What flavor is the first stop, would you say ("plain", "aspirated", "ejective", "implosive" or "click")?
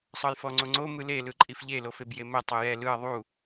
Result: click